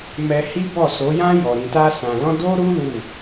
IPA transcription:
m ɛ˧ h i˦ b ɔ˦˨ s o˨˦ j ã˦ j ɔ˧ ɾ ĩ˧ t a˦ s ã˧ l ɔ̃˦ d o˦ ɾ u˦ l u˦˨

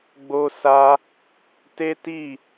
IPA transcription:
ɡ͡b o˦ s a˦ | t e˦ t i˦˨

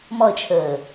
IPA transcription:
m ɔ ə̯ t͡ʃʰ əː

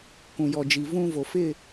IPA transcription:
k ũ˨ j ɔ˨ d͡ʒ i˨ v ũ˦ v o˨ f ɪ˦˨

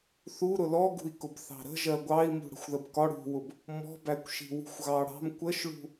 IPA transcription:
θ u ɾ ʊ l ɔ ɡ ṳ i̯ k ʊ b θ ɑ̤ ɾ ə̤ ʒ ɜ ɡʷ ɑ i̯ m ṳ ɽ ə̤ xʷ ð ə b k ɒ ɽ ṳ w ʊ b | m ɔ̤ b æ kʷ ʃ i̤ w ṳ xʷ ɣ ɑ ɽ ɑ̤ m kʷ ə ʃ ɭ ṳ

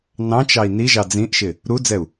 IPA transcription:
n ɑ̃ t͡ʃ ɑ i̯ n i ʒ ɑ d͡z ĩ ʔ ʃ ɪ | ɾ u d͡z ɛ u̯

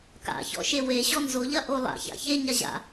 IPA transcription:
k a̰ ç ɔ̰ ʃ e w e ɕ ɔ n z o ʎ ɐ ʔ o lˠ a̰ ç a̰ ç e ɲ a ʑ a̰

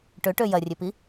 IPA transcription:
ʈ ø ʈ ø j ɐ rʲ ø p i

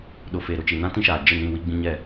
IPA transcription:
ɗ ʊ˨ f e˨ ɾ ʊ˨ t͡ʃ i˨ n ã˦ t ĩ˦ ʃ aː˨ d͡ʒ ɪ˦˨ n ĩ˦˨ w i˦ ɡ͡b ĩ˦ ɲ ɛ˦˨

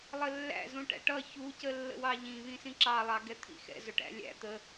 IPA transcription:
lˠ ə lː æ̰ z ũ ʈ æ̰ ʈ ʌ ç u c ə lː ə̰ w ɑ ʎ ĩ β ĩ s ĩ ǁ ɑ lˠ ɑ ɡ ɛ t̪ʰ ḭ x ɛ̰ z ʊ ʈ æ̰ lʲ æ̰ t̪ ə

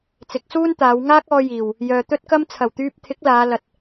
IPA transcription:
t͡s ɪ˨˥ k̚ s uː˥ n t̪ aː˨˧ w ŋ aː˥ k̚ ɔː˧ j iː˨˩ w | j œː˨ t̪ ɵ˥ t̚ k ɐ˥ m t͡sʰ ɐ˨˩ w t̪ yː˧ p̚ t̪ʰ ɪ˨˥ k̚ l aː˨˧ l ɐ˨ t̚

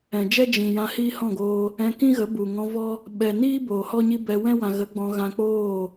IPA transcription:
ɛ̃˨ d͡ʒ ɛ˦ d͡ʒ ĩ˨ j ã˧ h iː˦ h ɔ̃˦˨ ɡ oː˧ | ɛ̃˧ k ĩ˦ ɣ ə˨˦ b u˨ ŋ ɔ̃˧ v ɔ˦ | ɓ ɛ˨ n iː˦ b oː˨ h ɔ˦ ɲ i˦ b ɛ˧ w ɛ̃˦ w ã˨ ɣ ə˨˦ ɡ͡b ɔ̃˧ ɣ ã˧ k͡p oː˦˨

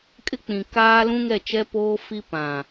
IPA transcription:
kʼ ɪ˦ k͡p ĩ˨ k aː˦ l ũ˦ ŋ ɛ˦˨ t͡ʃ ɛ˦ p oː˦ f i˦ p ã˨

